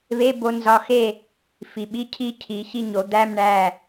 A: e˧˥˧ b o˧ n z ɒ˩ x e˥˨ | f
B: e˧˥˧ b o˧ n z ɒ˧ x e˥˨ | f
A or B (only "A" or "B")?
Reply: B